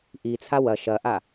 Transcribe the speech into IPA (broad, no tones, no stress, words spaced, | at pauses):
ʔit͡sʰa wɐ ʃɐʔa